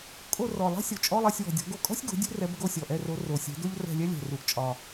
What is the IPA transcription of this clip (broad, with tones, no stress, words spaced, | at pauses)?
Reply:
kʼo˦˨ rɔ˨˩lˠɛ̤˥ sʲo˨˩t͡ʃʼɔ˧˥˧lˠɛ˦˨sʲwɔ̤˨˩ dʲɔ̤˨˥ɡo˦˨ kʼɔ̤˥sʲɡo̤˨˥ dʲṳ˥rɛ˨˥b ɡo˦˨sʲɔ˨˩ʔɛ˦˨ro˨˥ ro˨˩sʲɛ̤˨˥do˥ʎ rɛ̤˦˨lʲɛ˥lʲɛ̤˨˩ ru˨˩ʔt͡ʃʼɒ˨˩